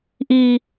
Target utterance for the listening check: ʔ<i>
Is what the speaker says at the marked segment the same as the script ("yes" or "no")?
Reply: no